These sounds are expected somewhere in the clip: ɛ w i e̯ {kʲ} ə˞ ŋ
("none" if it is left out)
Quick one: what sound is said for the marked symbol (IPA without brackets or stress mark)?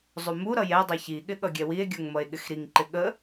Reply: ɡʲ